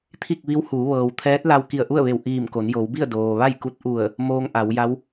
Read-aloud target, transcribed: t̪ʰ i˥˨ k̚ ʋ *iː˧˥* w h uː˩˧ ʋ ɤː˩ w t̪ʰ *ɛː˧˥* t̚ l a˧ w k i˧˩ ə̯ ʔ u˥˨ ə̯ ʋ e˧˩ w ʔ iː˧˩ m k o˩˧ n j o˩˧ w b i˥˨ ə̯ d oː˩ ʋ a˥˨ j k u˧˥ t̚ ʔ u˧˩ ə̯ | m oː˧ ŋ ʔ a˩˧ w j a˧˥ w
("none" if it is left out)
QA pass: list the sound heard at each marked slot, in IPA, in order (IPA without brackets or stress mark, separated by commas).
i˧˥, ɛː˧˥